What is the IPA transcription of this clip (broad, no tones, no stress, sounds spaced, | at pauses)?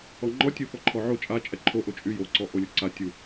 ɔ ŋ͡ǃ ɔ tʲ u f ɔ ǃʰ ɔ ʕ o t͡ʃʼ a t͡ʃʼ ɛ ǃʰ o ʔ o t͡ʃʼ y j o ǀ ɔ ʔ o lʲ o ǀ a tʲ u